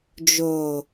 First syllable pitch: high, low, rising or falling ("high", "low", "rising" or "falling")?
low